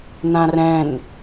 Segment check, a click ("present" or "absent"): absent